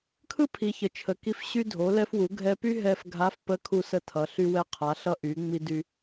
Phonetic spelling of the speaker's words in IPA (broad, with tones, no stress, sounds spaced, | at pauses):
kʰ ɯ˥ pʰ i˩˧ ç ə˩ t͡ʃʰ ə˩˧ k i˧ f ɕ y˧ dʱ o˩˧ l ɛ˧ f w u˩˧ ɡʱ ɛ˧ p y˥ ɦ ɛ˧ f ɡʱ a˧˥ f p ə˧˥ kʰ u˧ s ə˧ tʰ ʌ˩˧ ɬ y˧ w ɛ˧ qʰ a˩˧ ɬ ʌ˧ ʔ y˩˧ ŋ͡m i˧ d y˧